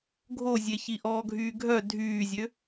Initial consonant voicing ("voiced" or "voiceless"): voiced